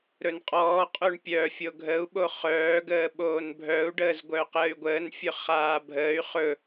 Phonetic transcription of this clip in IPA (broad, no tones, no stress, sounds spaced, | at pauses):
ɾ ɵ n qʼ ɔː qʼ o ɳ pʲ œ fʲ o ɡʱ ə u̯ ɓ o χ œː ɡ əː ɓ oː n bʱ œ u̯ ɖ əː z ɡʷ œ q əː y̯ ɡʷ əː n fʲ ɵ χ aː bʱ əː y̯ χ ɵ